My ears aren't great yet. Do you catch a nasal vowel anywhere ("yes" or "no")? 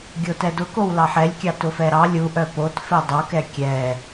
no